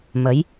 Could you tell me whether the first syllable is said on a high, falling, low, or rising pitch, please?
rising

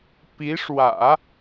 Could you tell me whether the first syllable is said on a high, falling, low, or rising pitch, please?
rising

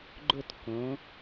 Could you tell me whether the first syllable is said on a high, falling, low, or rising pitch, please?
falling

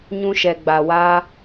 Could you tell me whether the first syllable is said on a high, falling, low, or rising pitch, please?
high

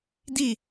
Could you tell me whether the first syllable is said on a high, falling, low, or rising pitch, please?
falling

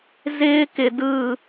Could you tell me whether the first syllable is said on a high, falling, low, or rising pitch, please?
high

